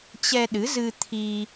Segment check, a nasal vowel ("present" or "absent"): absent